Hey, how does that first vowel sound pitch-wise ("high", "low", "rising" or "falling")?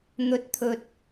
rising